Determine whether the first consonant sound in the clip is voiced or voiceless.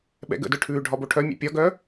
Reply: voiced